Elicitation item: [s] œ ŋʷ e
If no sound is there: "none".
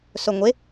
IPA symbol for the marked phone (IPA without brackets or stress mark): s